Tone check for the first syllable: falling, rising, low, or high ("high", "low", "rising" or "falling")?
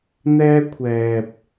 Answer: high